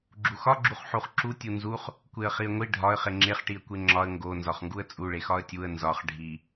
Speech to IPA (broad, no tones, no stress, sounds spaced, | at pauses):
ɡ͡ǁ u x ɒ ɡ͡ǁ u χ ħ u χ ǁ u tʲ u n z u χ | kʷ e ə̯ χ i ə̯ ŋʷ i ɖʱ ɒ ə̯ χ e ŋ͡ǁ e χ ʈ i ə̯ kʷ e ŋ͡ǁ ɒ ə̯ ŋ ɡ o n z ɒ χ ŋ ɡ u ə̯ t͡sʼ u ɭ e x ɒ ə̯ tʲ u ə̯ n z ɒ χ ɖʱ i